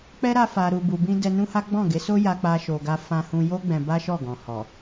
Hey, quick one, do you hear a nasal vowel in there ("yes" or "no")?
yes